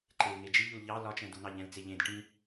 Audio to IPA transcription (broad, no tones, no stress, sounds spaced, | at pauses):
ǃ e l ŋ e d͡ʒ i ʎ u l ʎ ɑ l ɒ t͡ʃ ɛ̃ d u n ɑ ʎ ɛ̃ l t͡s e ʎ ẽ d ʈ ĩ